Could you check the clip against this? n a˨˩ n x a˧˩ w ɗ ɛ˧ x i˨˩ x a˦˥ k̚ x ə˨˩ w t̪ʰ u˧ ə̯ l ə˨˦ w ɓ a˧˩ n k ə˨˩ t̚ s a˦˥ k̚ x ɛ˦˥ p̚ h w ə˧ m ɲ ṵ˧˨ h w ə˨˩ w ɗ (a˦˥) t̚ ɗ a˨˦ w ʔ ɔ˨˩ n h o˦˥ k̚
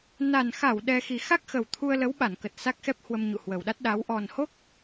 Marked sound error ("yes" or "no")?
no